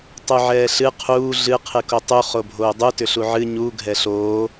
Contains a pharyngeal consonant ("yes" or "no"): yes